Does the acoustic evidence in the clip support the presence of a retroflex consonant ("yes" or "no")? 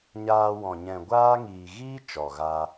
no